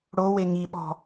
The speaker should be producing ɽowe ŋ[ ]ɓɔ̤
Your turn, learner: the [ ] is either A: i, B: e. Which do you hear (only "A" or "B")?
A